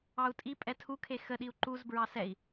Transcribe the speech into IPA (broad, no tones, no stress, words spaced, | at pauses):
ɑu̯tʼipʼɛ tʰukʰe xəɗiu̯ ǃuzbɹɑ sɛi̯